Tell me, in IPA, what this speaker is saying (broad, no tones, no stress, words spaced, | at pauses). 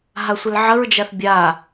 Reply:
ɦasʷəlʕəɹd͡ʒaθ bʲa